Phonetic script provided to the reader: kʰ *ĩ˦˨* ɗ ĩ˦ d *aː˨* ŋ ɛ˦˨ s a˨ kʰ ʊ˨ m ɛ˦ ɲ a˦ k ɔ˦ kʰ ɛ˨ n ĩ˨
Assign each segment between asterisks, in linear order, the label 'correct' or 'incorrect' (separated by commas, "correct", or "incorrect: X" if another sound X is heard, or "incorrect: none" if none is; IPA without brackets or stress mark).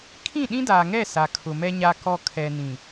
correct, correct